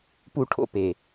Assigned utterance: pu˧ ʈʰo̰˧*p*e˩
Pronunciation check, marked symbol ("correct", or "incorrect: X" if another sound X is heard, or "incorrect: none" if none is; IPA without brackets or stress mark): correct